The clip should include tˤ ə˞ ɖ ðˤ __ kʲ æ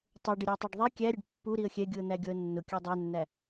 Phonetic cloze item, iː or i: i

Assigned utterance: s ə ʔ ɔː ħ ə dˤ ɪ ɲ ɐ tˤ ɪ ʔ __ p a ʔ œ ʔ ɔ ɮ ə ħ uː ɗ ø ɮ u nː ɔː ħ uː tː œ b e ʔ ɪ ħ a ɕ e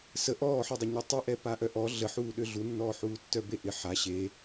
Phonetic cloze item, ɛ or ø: ɛ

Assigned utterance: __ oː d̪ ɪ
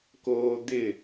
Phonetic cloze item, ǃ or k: k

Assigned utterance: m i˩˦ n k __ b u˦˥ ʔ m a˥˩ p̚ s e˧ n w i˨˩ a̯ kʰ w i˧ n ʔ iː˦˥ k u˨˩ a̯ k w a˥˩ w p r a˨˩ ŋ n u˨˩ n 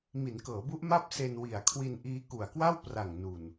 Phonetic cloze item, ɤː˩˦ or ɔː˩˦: ɤː˩˦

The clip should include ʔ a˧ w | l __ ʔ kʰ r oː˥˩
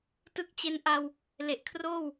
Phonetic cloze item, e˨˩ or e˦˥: e˨˩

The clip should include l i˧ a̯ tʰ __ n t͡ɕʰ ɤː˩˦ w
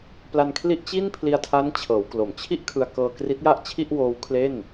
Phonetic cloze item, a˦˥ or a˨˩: a˦˥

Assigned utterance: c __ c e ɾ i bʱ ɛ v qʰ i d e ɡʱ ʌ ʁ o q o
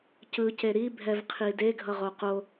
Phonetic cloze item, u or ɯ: ɯ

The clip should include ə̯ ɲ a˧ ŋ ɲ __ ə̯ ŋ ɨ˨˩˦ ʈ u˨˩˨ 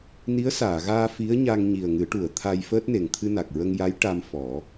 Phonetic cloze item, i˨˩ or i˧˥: i˨˩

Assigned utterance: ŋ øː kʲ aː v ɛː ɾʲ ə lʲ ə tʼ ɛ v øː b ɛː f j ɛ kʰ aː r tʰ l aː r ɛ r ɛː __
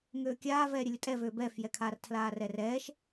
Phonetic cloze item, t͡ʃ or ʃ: ʃ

